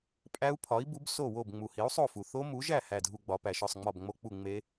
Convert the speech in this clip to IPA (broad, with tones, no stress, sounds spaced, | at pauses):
pʼ æ˦˥ u̯ pʰ ɒ˨˥ i̯ b u˨˥ b s o˥˨ w o˥˨ b ŋ͡m u˨ h i˨˥ u̯ sˤ o˥˨ f u˨ θ o˦˥ m u˨˥ ʒ æ˥˨ h æ˥˨ dʱ u˥˨ ɡ͡b ɒ˨˥ p æ˨ ʃ ɒ˥˨ sˤ ŋ͡m ɒ˥˨ b ŋ͡m o˦˥ k͡p u˥˨ ŋ͡m e˦˥